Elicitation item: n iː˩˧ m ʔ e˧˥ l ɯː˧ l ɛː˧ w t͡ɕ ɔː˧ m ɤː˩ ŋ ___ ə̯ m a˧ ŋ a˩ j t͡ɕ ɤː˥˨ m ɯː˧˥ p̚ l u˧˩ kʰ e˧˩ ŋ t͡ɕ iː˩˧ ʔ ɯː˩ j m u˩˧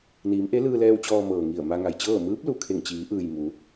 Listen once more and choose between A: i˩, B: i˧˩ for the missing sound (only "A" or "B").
B